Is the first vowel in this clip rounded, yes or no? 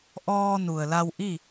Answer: yes